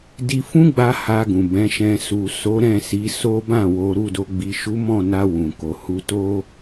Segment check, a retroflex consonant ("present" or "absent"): absent